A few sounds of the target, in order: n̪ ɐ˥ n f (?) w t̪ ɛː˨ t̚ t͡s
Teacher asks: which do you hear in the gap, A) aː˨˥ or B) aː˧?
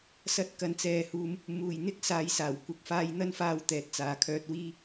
B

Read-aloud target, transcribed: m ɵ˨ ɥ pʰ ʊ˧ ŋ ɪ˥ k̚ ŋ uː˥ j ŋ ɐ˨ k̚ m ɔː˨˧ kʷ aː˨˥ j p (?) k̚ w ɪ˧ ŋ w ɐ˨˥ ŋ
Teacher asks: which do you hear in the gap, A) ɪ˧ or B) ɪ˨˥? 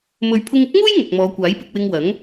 A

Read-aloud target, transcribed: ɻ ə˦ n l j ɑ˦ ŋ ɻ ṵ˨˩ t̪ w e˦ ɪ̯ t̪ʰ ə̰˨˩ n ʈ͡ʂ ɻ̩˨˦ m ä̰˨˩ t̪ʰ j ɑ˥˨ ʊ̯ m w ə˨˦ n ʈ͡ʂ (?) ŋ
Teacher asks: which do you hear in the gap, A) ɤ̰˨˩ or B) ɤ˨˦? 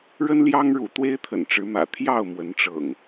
A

